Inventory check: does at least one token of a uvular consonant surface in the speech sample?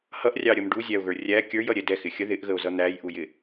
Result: no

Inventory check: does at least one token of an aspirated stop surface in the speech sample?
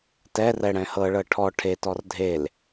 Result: yes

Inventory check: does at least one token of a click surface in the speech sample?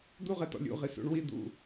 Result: no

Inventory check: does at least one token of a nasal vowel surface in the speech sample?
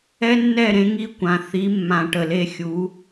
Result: yes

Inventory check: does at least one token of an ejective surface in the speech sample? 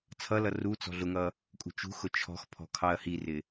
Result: yes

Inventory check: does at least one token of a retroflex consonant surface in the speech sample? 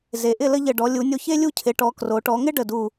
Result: yes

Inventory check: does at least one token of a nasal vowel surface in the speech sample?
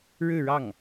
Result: no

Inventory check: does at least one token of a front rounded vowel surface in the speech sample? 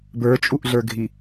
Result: no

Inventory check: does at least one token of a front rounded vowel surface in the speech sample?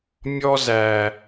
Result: no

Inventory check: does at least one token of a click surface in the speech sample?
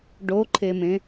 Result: yes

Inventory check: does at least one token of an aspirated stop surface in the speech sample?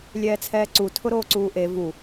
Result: yes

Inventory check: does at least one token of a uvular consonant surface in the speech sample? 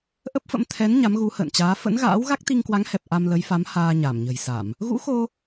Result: no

